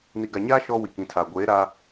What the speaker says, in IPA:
ni˨ɡa˨ɲaː˦ ʃɔ˦ wi˨kĩ˨˦tʰaː˨ ɡʷeː˨˦ɾa˦

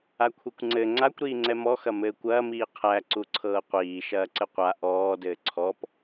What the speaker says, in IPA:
akʷʰikʷŋ͡ǀɘ ŋ͡ǀakʷ ɾiːŋ͡ǀɛmɔ xɐmɘːkʷɐː miːqʰæ ǀuǀʰɤːqʷiː ʃɐːǀɘqʷa ʔɔː dɘːǀʰɔp

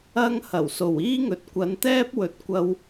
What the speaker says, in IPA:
ɐ˧ŋ hɐ˨˩w so˨˩wiː˥ŋɵ˨t̚ kʷɐ˨˧nt̪ɛː˥p̚wɵ˨t̚kʷɐ˧w

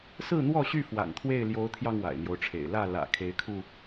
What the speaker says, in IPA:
sɹ̩˥˨n̪wɔ˥˨ɕy˥˨ fwa̰˨˩nt̪ʰwe˥˨ɪ̯ ljo˨˦ʊ̯t̪ʰjɑ˧ŋ wa̰˨˩ɪ̯n̪jo˦ʊ̯ʈ͡ʂʰḛ˨˩ɪ̯ lä˥˨ lä̰˨˩ kʰe˨˦ɪ̯kʰu˧

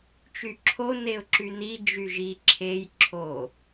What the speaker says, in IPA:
t͡ʃyǁʰo neʊ̯ǁyni d͡ʒyʒi ǁʰej ǁʰo

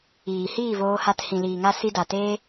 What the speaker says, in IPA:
iː˨hiː˦˨voː˧ha˧t hĩ˨liː˨ŋa˧ si˧da˨ teː˦

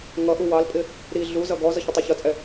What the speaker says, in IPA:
ŋʌ ʔuwɑlpʼɪ | ɾi ɮuzʌ ɡɔzʌç ɪtˤiçʌt͡sʼɛ

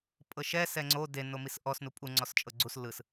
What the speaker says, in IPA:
pʼɤʃɛ sɛŋ͡ǀo de nomisʔɔs nupʼu ŋ͡ǀɔst͡ʃʼɤɡ͡ǀus lɯs

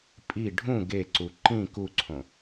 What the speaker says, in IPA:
pʼi ɖʱũ ɡeǀu ǃĩ kuǀʰõ

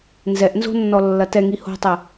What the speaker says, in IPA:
nzɛʔnzo̤nːɔlːɐ tɛŋi ho̤tˤɛ

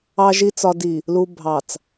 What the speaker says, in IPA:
ɑ˨ʒi˨t͡sɒ˨di˨ | lu˨bʱɑ˨t͡s

